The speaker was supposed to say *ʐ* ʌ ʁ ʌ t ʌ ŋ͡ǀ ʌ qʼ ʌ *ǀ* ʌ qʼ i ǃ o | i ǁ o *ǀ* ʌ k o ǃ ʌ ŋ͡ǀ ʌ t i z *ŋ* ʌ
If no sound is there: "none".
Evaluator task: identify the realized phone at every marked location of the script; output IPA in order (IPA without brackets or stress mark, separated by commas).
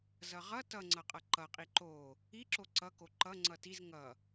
z, ǃ, ǀ, ŋ